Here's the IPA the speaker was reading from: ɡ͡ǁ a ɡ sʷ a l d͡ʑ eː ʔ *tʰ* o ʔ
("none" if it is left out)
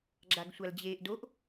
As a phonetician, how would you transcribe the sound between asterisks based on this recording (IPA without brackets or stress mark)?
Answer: d